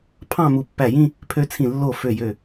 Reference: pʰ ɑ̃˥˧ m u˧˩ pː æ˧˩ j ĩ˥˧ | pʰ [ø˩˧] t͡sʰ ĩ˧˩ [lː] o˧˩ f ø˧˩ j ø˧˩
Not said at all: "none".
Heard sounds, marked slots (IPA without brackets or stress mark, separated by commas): ø˧, lː